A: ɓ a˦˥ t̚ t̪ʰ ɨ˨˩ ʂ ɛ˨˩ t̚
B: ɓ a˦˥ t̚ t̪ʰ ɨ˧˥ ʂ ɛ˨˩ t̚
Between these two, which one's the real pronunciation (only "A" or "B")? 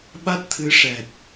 B